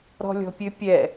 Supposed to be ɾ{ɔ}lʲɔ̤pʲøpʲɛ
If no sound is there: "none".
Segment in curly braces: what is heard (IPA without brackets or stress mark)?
ɔ̤